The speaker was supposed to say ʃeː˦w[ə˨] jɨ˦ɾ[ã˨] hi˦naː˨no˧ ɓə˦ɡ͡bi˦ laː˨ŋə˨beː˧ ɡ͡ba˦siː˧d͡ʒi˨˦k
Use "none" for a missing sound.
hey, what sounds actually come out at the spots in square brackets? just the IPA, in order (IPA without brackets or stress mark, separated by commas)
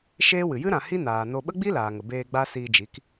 ɨ˨, ã˨